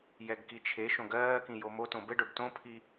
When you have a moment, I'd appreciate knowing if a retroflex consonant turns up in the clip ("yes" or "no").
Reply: yes